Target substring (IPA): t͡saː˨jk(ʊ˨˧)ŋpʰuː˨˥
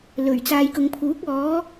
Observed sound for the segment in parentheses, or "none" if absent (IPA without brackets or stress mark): ʊ˨˧